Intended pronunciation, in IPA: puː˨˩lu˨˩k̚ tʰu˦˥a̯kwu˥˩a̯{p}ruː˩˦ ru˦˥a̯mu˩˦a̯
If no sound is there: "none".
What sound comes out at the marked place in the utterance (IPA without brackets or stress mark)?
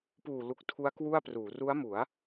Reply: p